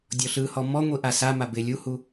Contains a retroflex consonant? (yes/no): no